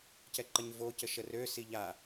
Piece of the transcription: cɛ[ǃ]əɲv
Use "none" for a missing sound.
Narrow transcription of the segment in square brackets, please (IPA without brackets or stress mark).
ǃ